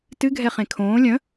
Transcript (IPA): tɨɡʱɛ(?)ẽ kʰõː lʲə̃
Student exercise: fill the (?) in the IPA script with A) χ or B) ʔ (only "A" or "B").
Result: A